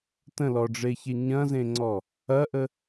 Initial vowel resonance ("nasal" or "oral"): nasal